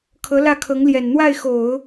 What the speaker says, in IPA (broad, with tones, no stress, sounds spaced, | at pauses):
kʰ ɤ˧˥ l ä˥˩ kʰ ɤ˧˥ ŋ l j ɛ˨˩ n n̪ w a˥˩ ɪ̯ x o˨˩˦ ʊ̯